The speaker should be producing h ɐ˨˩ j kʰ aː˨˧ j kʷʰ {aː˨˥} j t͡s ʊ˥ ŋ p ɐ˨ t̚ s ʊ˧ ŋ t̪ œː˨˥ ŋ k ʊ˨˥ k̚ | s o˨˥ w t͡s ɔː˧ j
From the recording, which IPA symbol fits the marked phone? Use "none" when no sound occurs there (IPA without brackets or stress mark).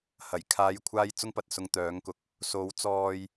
aː˧